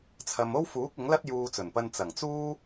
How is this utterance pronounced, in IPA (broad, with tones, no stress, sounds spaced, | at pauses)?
t͡sʰ ɐ˨ m o˥ w f uː˨˥ k̚ ɪ˨˥ ŋ l ɐ˥ t̚ j uː˧ t͡s ɵ˨˩ n p ɐ˧ n t͡s ɐ˨˩ ŋ t͡s uː˥